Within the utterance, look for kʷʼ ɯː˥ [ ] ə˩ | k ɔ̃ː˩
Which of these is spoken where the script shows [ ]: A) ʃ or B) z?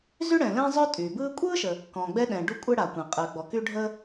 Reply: A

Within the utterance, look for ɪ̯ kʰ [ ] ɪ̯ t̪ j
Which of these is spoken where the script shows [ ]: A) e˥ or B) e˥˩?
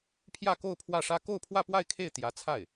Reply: B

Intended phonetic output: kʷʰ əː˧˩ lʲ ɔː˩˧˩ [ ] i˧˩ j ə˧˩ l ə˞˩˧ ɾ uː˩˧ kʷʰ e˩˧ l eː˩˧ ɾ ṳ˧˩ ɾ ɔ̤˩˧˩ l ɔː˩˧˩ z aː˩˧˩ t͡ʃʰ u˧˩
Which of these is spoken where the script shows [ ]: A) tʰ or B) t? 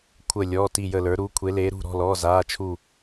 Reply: B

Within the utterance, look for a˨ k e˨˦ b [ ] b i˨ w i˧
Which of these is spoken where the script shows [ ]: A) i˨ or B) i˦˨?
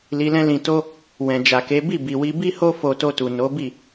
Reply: B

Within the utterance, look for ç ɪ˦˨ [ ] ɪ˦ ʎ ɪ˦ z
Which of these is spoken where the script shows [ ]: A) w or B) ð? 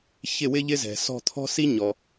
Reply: A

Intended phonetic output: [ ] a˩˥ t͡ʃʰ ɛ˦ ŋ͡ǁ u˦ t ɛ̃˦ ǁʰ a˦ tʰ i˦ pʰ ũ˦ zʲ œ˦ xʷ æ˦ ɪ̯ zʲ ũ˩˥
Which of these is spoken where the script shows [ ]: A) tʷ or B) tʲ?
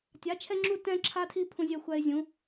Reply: B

